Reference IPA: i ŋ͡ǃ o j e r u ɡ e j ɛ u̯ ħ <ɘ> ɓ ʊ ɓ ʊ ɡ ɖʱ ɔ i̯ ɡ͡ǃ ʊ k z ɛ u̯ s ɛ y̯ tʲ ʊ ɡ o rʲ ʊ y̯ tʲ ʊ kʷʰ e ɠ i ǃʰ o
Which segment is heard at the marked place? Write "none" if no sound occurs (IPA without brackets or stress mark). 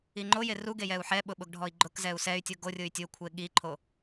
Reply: ɛ